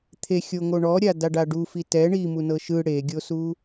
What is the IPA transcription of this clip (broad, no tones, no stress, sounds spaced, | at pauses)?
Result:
t̪ʰ e xʲ o ŋ o ɳ ɔ ɾʲ a d a ɖ a ɖ u f i t ɛ ɳ i m u n ɤ ʃ ɯ ɽ e ɡʲ o s u